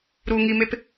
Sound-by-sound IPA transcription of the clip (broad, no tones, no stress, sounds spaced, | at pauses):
ɾ u ŋ i m e p